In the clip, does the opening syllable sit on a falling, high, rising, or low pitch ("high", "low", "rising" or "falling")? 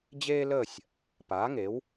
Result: high